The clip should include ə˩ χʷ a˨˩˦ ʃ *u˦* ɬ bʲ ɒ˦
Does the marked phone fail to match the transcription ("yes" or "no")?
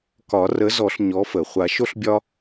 yes